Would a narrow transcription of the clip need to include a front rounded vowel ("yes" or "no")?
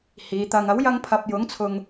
no